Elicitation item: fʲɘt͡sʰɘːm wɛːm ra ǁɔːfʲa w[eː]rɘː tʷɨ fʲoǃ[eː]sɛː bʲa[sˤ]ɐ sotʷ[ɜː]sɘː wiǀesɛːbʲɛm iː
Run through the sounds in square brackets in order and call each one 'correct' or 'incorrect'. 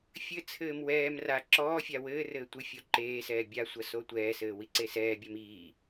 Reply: incorrect: ɘː, correct, incorrect: sʷ, incorrect: ɛː

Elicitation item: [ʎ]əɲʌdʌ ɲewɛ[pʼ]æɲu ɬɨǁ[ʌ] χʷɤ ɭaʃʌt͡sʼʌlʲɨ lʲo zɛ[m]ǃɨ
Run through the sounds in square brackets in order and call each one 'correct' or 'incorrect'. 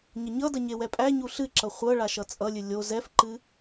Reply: incorrect: ɲ, correct, correct, incorrect: f

